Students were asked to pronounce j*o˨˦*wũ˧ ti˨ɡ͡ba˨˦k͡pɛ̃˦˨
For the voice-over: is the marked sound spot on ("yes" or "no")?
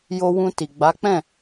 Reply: no